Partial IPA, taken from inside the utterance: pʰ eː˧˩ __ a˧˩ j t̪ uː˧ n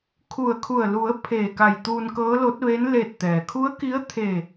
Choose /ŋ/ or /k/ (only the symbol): k